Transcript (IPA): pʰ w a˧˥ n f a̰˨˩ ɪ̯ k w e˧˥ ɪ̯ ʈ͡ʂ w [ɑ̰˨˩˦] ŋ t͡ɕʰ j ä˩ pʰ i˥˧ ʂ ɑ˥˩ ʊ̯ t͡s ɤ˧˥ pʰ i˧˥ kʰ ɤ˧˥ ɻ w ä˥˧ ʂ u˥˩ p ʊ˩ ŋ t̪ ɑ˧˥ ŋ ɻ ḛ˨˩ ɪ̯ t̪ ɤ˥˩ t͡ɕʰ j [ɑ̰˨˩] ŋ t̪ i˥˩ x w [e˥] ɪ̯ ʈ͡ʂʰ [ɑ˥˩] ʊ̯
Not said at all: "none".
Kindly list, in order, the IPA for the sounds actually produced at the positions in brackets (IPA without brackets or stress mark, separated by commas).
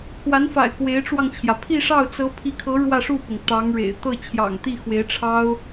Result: ɑ˧, ɑ̰˨˩, e˧˥, ɑ˥